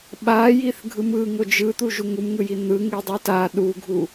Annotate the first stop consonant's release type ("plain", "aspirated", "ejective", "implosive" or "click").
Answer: implosive